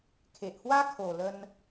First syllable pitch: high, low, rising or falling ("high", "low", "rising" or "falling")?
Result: low